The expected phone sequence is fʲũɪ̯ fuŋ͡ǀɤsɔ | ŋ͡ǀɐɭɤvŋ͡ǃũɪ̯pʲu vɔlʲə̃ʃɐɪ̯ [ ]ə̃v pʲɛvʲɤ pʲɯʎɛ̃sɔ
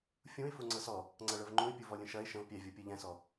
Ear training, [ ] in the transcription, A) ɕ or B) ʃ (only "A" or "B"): B